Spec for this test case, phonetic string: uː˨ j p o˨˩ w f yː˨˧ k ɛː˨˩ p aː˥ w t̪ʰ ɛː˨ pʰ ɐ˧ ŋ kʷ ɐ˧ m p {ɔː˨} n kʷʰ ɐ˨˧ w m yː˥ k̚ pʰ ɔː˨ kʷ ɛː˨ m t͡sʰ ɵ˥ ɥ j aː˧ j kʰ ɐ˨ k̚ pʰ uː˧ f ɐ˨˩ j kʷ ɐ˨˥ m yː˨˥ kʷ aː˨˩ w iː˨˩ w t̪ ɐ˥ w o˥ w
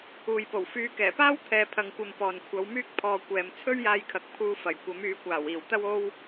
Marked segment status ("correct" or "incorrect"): correct